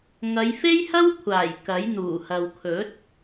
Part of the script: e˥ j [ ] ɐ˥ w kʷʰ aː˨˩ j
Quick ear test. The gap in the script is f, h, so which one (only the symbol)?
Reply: h